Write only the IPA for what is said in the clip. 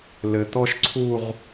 l ɘ˩˧ t̪ ɔ˥ ʃ ǀʰ u˥˧ ʁ

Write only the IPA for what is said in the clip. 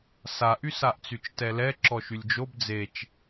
s a ʔ y s a ʔ t͡s y t͡ʃ t ɛ l ɛ ǁ ɔ ʃ y lʲ d͡ʒ o b d͡z e t͡ʃ

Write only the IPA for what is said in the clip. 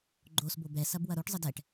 ɡ͡ǃ o s b o b ɛ s ɐ b w ɐ ɾ o ʈ zˤ ə d ɛ ʈ

